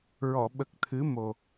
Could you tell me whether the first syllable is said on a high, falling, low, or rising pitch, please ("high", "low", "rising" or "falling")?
low